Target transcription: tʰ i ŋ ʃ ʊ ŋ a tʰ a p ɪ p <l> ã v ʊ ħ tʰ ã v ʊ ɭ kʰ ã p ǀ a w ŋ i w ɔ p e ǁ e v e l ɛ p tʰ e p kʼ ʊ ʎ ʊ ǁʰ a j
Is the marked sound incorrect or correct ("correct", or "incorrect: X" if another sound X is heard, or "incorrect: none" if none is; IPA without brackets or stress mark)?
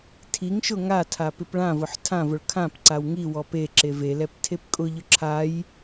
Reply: incorrect: ɭ